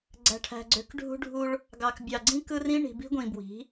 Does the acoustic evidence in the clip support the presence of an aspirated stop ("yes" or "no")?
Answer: yes